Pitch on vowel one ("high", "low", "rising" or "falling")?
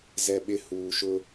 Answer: high